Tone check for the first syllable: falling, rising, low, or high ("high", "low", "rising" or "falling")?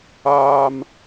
high